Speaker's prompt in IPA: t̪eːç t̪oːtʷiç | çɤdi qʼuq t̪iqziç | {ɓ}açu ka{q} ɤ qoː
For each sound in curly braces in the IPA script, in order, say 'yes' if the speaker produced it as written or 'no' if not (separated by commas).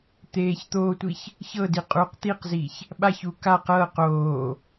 yes, yes